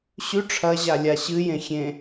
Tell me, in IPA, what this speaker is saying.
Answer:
ɕ ʉ ʈ͡ʂʰ ɐ ʑ a lʲ a ɕ ɨ j ẽ xʲ ẽ

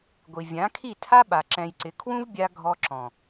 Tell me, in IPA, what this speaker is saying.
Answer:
ɡʷ i˨ vʲ ã˨˦ kʰ i˦˨ tʰ a˦ ɓ a˨ ǁ ɛ̃˨ j ǀ ɪ˨ kʰ w ũ˦ v bʲ a˧ ɡʱ ɔ˧ ǁ ɔ̃˨

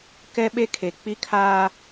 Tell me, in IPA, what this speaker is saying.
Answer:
k ɛ˦ ɓ e˦ kʰ e˨ k͡p i˦ kʰ aː˦

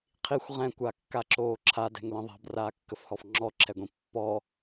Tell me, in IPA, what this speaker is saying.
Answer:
qʰ i xʷ ʁ ɛ̃ kʷ a kː a ǁ oː ǁʰ a d ɛ̤ ŋ l ə̃ ðˤ a̤ b r aː kː ə f h ɔ f ŋ͡ǁ ɔ ǁʰ ɛ ɡʷ ĩ pː ɔ

